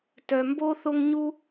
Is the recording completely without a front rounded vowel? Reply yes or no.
no